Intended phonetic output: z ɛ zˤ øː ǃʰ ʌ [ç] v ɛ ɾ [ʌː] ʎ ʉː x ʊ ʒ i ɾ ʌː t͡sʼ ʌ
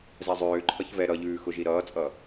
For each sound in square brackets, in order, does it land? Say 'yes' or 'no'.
yes, no

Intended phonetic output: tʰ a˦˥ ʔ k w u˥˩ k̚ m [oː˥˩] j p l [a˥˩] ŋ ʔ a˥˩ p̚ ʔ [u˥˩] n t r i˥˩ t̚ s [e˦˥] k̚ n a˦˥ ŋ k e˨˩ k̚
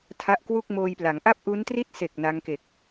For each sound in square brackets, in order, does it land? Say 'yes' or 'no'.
no, no, no, no

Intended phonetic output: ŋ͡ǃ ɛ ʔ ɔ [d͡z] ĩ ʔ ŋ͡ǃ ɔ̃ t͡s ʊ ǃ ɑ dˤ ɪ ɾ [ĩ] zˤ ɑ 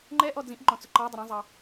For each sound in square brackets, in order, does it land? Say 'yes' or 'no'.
yes, yes

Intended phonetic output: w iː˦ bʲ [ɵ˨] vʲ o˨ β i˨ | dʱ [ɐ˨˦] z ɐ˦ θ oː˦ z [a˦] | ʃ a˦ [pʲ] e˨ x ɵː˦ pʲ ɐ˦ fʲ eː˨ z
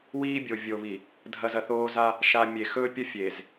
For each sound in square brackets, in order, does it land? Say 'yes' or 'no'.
no, no, yes, no

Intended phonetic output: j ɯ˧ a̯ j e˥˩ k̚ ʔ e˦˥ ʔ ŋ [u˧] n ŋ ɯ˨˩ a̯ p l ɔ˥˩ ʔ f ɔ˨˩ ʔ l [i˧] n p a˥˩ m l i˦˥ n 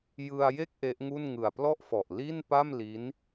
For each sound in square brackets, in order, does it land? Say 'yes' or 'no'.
no, no

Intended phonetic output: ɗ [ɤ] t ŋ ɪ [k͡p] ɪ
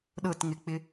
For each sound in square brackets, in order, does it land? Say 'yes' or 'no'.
yes, yes

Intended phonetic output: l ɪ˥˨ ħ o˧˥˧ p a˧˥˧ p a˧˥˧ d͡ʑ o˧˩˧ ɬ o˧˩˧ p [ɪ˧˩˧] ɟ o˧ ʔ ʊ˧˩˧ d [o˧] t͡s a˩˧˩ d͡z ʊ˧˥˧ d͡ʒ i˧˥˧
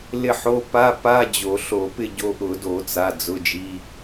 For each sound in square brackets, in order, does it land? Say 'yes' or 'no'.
no, no

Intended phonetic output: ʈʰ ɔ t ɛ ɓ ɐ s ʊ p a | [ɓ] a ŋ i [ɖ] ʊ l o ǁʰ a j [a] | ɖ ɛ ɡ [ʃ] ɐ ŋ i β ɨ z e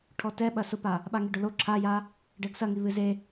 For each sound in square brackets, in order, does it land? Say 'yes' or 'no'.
yes, yes, yes, no

